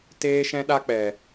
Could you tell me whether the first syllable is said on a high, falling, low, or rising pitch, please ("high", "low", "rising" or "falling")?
high